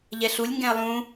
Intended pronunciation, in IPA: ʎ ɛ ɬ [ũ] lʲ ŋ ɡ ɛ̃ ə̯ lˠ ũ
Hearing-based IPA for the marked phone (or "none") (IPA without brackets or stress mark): u